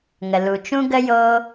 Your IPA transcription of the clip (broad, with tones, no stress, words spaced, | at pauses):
ŋə˨ lu˨t͡ʃũ˧ ɡə˦joː˦